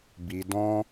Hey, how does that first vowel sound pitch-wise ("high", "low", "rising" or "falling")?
low